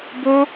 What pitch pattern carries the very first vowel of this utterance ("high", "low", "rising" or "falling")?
high